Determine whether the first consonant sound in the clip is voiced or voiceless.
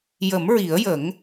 voiced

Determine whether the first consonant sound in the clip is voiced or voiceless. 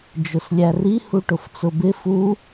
voiced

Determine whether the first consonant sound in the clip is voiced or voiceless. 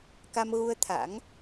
voiceless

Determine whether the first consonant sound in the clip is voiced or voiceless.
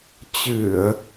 voiceless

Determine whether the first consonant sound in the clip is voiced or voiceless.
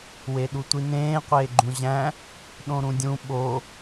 voiced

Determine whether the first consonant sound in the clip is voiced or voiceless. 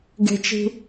voiced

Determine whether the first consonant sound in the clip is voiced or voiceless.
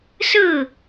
voiceless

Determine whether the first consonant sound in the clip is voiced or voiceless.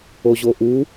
voiced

